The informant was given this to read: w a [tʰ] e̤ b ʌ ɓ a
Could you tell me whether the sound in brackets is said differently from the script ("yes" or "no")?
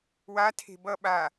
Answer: no